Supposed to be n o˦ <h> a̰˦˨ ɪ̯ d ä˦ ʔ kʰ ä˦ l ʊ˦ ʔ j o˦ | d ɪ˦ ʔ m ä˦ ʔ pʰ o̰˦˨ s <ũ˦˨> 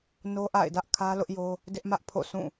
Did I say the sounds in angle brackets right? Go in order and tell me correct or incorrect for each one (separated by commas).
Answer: incorrect, correct